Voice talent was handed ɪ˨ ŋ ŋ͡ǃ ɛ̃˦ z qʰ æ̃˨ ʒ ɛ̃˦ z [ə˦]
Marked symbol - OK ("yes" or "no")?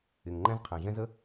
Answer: yes